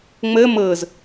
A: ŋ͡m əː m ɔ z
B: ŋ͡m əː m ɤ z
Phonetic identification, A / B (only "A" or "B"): B